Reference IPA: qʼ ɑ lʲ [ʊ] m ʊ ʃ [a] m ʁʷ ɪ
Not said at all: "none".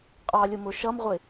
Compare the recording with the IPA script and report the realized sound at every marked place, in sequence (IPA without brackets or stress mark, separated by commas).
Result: ʊ, ʌ